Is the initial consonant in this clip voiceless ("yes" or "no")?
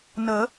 no